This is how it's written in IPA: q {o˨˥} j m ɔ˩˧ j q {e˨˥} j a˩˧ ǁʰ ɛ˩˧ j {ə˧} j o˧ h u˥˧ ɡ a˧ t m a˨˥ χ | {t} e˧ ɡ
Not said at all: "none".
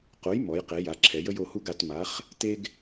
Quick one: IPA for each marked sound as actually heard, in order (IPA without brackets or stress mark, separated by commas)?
o˨˥, e˩˧, ə˧, t